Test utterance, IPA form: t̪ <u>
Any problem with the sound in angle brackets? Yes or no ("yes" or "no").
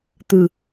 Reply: yes